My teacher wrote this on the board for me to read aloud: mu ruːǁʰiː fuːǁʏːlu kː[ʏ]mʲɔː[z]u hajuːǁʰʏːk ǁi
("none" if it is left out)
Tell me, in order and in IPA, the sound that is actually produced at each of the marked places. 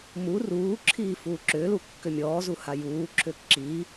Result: ʏ, z

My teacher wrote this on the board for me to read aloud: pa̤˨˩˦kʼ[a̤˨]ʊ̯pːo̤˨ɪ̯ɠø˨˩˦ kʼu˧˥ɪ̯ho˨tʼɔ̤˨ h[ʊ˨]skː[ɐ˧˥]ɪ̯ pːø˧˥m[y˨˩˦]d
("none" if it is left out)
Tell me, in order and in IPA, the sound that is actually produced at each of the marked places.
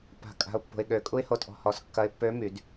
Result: a̤˨, ɔ˨, ɐ˧˥, y˨˩˦

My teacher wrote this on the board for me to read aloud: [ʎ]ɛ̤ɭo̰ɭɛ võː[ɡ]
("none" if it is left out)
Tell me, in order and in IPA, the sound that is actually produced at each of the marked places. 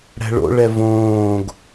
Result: ɽ, ɡ

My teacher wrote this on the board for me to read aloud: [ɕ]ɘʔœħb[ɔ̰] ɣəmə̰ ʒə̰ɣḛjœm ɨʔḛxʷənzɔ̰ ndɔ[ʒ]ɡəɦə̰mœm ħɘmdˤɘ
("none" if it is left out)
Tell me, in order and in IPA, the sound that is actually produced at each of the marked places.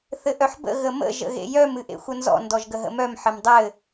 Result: θ, ə̰, ʒ

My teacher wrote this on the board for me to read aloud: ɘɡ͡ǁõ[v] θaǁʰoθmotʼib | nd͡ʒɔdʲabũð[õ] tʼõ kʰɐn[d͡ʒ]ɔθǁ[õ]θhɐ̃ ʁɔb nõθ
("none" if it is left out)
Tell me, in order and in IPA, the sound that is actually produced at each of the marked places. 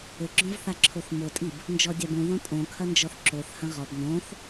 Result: v, õ, d͡ʒ, o

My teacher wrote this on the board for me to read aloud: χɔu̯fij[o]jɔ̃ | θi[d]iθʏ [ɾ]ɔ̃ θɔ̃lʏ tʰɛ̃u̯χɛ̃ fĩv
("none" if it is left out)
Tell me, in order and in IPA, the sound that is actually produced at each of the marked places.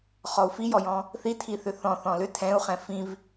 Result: ɔ, tʰ, θ

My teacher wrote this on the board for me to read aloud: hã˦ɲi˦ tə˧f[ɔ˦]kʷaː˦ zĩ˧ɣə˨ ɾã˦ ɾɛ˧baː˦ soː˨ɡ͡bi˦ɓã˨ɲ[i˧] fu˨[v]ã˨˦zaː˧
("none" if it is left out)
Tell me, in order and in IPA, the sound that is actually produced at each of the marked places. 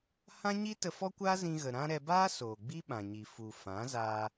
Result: ɔ˦, i˨, f

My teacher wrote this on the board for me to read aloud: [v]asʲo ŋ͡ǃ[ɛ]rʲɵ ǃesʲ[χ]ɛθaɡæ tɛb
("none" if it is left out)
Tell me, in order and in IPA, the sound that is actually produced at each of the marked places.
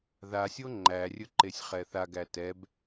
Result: ð, æ, χ

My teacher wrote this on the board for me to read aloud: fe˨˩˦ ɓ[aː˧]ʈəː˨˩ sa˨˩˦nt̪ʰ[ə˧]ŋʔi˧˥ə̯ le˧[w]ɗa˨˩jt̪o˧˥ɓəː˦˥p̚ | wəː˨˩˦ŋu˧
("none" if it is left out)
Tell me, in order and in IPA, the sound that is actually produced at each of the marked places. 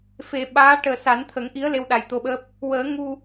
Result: aː˧˥, ə˨˩˦, w

